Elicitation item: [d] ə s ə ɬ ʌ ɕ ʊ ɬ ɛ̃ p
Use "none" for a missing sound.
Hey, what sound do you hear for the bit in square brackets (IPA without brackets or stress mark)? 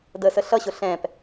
d